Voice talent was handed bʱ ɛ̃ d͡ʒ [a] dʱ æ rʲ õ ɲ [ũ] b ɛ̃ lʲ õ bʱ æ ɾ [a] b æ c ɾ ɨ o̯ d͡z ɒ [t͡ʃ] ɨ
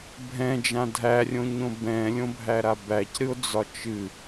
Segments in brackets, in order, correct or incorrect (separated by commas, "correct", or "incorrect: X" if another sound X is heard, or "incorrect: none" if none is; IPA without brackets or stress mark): incorrect: ã, incorrect: õ, correct, correct